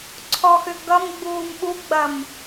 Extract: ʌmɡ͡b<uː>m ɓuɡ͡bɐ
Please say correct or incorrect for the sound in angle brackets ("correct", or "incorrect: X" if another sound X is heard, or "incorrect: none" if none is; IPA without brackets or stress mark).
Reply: correct